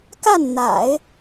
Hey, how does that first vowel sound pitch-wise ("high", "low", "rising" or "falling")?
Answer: falling